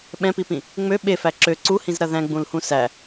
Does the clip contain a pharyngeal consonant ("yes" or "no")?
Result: no